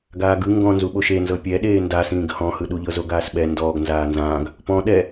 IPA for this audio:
ɡaːɡɯ ŋɡɔ̃nzuɓoʃ enzɤ pʲɛ ɗeːndasĩːɡ hɔ̃hɯɗuʎɤ zoɡaːsɓɛ ndɔːɡ nzaːnzãːɡ | pɔ̃ ɗɛ

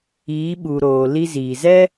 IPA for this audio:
iː˨˦ɓu˨ɾoː˨ li˧ziː˨zɛ˦

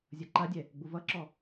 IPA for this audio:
zʲʌǃadʲɛ | ɡ͡buvʌǁɔ

